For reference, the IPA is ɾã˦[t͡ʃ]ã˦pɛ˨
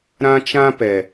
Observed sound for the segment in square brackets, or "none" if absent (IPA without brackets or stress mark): t͡ʃ